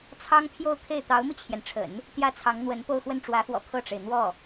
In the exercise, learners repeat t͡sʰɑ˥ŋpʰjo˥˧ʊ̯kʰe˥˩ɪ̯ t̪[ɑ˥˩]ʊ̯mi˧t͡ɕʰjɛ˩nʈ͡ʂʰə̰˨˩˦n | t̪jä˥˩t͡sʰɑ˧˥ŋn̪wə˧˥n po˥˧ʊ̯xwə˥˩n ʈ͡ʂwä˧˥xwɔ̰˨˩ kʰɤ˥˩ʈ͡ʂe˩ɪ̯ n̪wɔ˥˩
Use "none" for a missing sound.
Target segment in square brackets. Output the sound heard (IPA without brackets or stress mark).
ɑ˧˥